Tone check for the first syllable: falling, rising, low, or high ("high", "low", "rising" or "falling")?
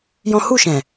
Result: high